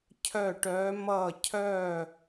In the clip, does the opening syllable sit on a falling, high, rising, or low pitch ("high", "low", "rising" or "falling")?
falling